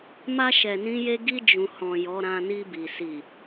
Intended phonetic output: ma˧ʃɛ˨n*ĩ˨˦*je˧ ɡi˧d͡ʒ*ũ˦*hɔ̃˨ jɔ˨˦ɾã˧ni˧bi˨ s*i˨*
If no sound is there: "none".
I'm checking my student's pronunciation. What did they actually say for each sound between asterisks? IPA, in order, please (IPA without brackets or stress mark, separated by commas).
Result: ĩ˨˦, ũ˨, i˨